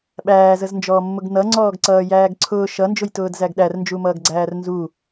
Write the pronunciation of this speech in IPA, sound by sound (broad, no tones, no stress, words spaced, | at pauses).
ɓæːzəznd͡ʒɔːmːʊɡ nʌŋ͡ǀɔːɡǀʌː jæːɡǀʰʊː ʃʌnd͡ʒʊjtʊːd zæɡɗærnd͡ʒumʌːɡ ɡ͡ǀæːrnzu